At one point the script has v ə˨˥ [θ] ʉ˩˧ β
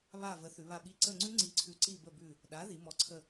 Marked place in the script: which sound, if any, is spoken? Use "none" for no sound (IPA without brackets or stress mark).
θ